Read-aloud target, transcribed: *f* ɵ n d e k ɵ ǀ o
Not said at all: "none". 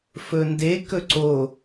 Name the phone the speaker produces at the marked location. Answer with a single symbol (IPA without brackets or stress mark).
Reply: f